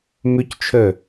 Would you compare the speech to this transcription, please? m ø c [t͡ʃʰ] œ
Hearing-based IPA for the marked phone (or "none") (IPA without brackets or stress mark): t͡ʃʰ